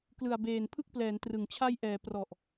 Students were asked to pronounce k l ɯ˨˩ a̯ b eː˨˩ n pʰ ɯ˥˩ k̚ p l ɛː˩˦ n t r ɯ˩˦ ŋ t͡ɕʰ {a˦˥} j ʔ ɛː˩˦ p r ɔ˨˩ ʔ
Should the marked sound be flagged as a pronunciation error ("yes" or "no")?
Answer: no